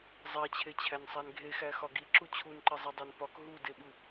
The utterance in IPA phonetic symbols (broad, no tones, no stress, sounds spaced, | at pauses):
zˤ æ t͡ɕʰ e t͡ɕʰ æ n sˤ æ n ɡʱ e x æ x ɒ ɡ i ǁ u t͡ɕʰ u n ǃ e zˤ e dˤ æ n p ɒ k ɦ u d e ɓ u